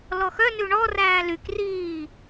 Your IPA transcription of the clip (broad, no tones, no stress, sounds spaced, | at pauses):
l ɔ x œ n ʉ ɳ ɔ r æː l y k r iː